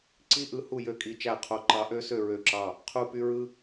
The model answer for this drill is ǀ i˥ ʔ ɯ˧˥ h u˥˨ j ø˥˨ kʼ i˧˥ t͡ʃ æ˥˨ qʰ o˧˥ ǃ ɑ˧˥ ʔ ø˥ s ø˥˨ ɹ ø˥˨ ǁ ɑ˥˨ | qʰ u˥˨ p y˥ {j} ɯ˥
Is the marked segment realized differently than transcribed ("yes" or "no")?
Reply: yes